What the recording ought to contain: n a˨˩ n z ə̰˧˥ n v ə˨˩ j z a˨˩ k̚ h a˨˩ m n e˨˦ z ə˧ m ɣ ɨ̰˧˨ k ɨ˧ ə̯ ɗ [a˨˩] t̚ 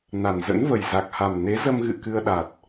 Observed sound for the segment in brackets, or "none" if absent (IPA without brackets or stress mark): a˨˩